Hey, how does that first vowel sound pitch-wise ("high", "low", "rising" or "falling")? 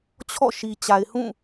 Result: falling